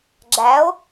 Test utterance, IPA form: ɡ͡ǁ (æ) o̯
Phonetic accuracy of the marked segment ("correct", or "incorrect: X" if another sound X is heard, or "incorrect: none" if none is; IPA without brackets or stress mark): correct